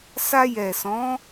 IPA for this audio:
s a˧ j ɛ˨ s ɔ̃˨˦

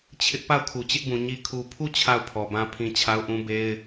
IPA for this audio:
t͡ɕʰ ɪ˦ ʔ p a˦˨ ʊ̯ kʰ u˨ t͡ɕ ɪ˦ ʔ b ũ˨ ɲ i˨ kʰ u˨ pʰ u˦˨ t͡ɕʰ a˦˨ ʊ̯ pʰ ɔ˨ b ã˦ pʰ ĩ˦ t͡ɕʰ a˦ ʊ̯ ʔ ũ˦ b e˦ ɪ̯

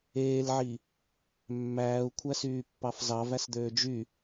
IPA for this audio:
eː l ʕ i | mː æː u̯ kʷʰ æ s yː pː ɑ f z ɑ v æ s d̪ øː d͡ʒ y

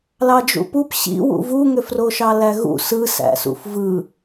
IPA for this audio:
l ɑ d͡ʒ ṵ p u p ɕ ḭ w ṵ v u ŋ ø f r o ʃ ɑ l æ ɣ ṵ s ɯ s æ̰ s ṵ f v ɯ

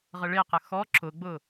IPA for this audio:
ʁ ə ɭ e q ə x ɔ ǁ ʊ ɡ͡b ʊ

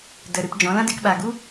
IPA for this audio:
d ə˨ ɾ ɨ˧ p d͡ʒ ɔ̃˨˦ l ã˦ d e˧ k ɓ a˨ ɡ u˦

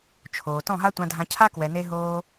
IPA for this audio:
t͡ʃʰ oː˨ t ɔ̃˦˨ ɦ a˦ tʷ ã˧ dʱ ã˧ cʰ a˦ k w ɛ˨ n e˧ ɦ oː˧

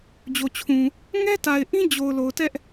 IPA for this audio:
d͡ʑ o˨ t͡ɕʰ ũ˨ | ŋ ɛ˦ t a˨ ɪ̯ ʔ ĩ˦ d͡ʑ o˨ ʊ̯ l o˨ ʊ̯ t ɛ˦ ʔ

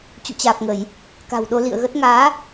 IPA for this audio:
t͡ɕ ṵ˧˨ t͡ɕ aː˨˩ p̚ ŋ ə˧˩˨ j | k a̤˨˩ w ɗ o˧ l ḭ˧˨ ə̯ ɣ ə˦˥ t̚ ŋ aː˨˦

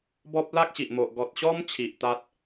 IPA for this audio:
b ɔ˦ p̚ l a˦ k̚ ɕ i˨ ʔ m o˨ ʔ ɡ ɔ˨ t̚ ɕ ɔ˦ m t͡ɕʰ i˨ ʔ t̪ a˦ t̚

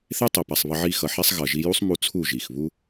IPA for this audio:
θ e˦ tˤ e˨ p a˨ sˤ β ʌ˧ ʕ i˦˨ x ʌ˧ ħ ɛ˦ sˤ ɣ ʌ˨ ʒ i˧ j u˦ sˤ m u˧ t͡sʰ u˦˨ ʒ i˨ x β u˦

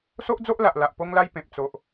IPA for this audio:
s o˦ ʔ d͡z o˦ ʔ l a˨ ʔ l a˨ ʔ p o˦ ŋ l a˦ j p ẽ˨ p̚ t͡s o˨ ʔ

